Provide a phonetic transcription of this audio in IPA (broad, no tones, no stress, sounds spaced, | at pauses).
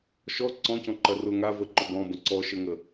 ʃ ɔ ǀ ɔ̃ c ɔ̃ ǃ ɐ r ʊ ŋ a v ə ǃ ʊ b ɔ̃ b ə̃ ǀ ɔ ʃ ə ŋ ə